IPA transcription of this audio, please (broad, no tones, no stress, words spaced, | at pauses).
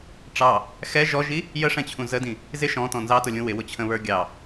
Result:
ʈ͡ʂɑ | xɛ ʒɔʒi | jəʂɛ̃t͡ɕʰũ zədĩ | zɪ ʃɔ̃tɔ̃ nzɑtʊlʲũ wɪwʊt͡ɕʰə̃βə˞ ɡʲɑ